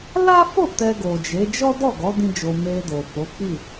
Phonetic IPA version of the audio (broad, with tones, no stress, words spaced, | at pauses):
la˦fo˦˨ tɛ˧ɡo˨d͡ʒe˨˦ d͡ʒɔ˦dɔ˦˨ɡɔ˨˦ dĩ˦d͡ʒo˧ me˧do˨ fo˨˦k͡pi˦˨